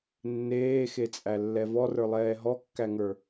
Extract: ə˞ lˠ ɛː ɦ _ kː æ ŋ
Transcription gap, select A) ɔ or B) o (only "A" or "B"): A